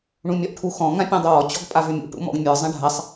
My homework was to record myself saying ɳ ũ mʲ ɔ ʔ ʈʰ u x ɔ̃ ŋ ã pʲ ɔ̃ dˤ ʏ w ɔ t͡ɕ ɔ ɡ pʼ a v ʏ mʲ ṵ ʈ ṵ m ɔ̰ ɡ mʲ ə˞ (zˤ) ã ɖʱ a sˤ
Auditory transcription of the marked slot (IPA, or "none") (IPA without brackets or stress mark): zˤ